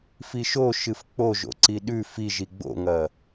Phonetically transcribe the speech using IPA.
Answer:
f i ʃ o ʃ ɨ f k͡p o ʒ o̰ ǀ i ɗ ʉ f i ʒ i ɡ͡b o̰ ŋ ɐ

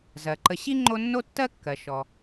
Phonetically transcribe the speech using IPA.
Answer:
z ɜ˩ ǃ ə˨ ɕ i˥ ŋ͡ǃ o˦ nː o˥ tː ɜ˥ kː ɜ˩ ʃ ɔ˩

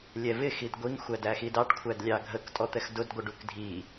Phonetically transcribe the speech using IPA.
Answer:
lʲ ɛ v ɪ x i d ɡʷ i ŋ xʷ æ d æ x i d ɑ ʈ kʷʰ æ d lʲ ɑ ɡʱ ə k tʼ ɔ t̪ ɛ x d ʊ d ɡʷ ə ɖ u k dʱ i

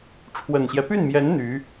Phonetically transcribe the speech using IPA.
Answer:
ʈ͡ʂʰ w ə˨˩ n ɕ j ɛ˦ p y˥˩ n m j ɛ˧˥ n n̪ y˧˥

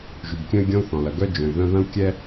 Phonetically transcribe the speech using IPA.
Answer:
ʒ y˨ b kʲ œ̃˦ y̯ ɡʲ ɔ̃˦ u̯ θ ɔ̃˨ l ɐ˨ ɡ œ˦ d͡ʒ œ̃˨ y̯ ð œ̃˦ ð ɐ̃˦ u̯ kʲ ɛ˦

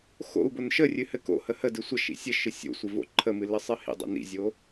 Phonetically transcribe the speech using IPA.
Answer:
x o̰ u̯ b o n ʃ ə rʲ ɨ h ɘ k o̰ h ə h ə d ɨ sʷ ə ʃ ḭ sʲ ɘ ʃ ɨ sʲ o̰ sʷ ɪ v o̰ ǃʰ ə m ɨ l ɘ sˤ ɨ h ḭ dˤ o̰ n ḭ zʲ o

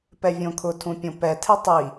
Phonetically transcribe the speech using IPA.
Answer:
p ɛ vʲ õ kʰ ʊ tʰ ũ pʲ õ p ɛ tʰ e tˤ i

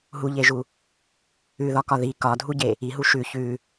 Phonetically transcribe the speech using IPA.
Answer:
ɦ u ʎ e ʒ u | ʉ ð ɒ k ɒ ð i k ɒ dʱ u ɟ e | i ɦ u ʃ ʉ ç ʉ

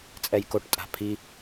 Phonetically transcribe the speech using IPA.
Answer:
t͡sʼ ɛ j k o ʈ tʼ a̤ pʰ i

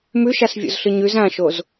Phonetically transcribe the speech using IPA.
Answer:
m ʉ ʃ a s vʲ o̰ z ɬ ɨ ɲ ʉ z ã ʃ o z

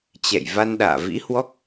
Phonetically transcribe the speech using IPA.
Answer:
t͡ɕ ɛ̰˧˨ j v a˧ n ɗ a̰ː˧˨ v ḭ˧˥ h w ɔ˦˥ k̚

